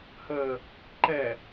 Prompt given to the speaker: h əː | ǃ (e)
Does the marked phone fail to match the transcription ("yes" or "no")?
yes